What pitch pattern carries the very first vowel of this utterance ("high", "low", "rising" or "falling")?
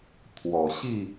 low